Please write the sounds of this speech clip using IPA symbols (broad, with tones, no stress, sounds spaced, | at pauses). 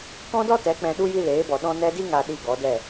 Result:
k ɔ̃˦ d ɔ˦ t ɛ˨˦ k͡p ɛ̃˧ ɗ u˦ j i˦ l eː˨˦ b ɔ˨ ɗ ɔ̃˧ n ɛ˦ d i˦ ŋ a˨ ɗ i˨ ɡ ɔ˨˦ d ɛ˦˨